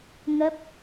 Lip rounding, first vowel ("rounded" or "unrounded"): unrounded